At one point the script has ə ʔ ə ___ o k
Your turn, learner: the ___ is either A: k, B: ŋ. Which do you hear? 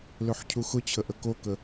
A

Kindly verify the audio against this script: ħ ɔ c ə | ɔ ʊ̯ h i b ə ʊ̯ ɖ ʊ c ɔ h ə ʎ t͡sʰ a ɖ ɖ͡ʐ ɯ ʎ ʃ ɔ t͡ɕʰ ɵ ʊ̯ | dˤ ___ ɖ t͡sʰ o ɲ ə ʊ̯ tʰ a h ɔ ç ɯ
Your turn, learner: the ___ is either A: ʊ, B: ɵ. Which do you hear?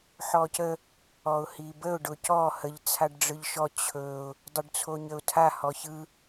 A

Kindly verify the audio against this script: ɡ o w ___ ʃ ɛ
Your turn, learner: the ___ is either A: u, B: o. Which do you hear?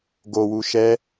A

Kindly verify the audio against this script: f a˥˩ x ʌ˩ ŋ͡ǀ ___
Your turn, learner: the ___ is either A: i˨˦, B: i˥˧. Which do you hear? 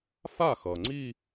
B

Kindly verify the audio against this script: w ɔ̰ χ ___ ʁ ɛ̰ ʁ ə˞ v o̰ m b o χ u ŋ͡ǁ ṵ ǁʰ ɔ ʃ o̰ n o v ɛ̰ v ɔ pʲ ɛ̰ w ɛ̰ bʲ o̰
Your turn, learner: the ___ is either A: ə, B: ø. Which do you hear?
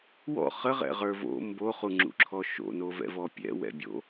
A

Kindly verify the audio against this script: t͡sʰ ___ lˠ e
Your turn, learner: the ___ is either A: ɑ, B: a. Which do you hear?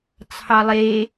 A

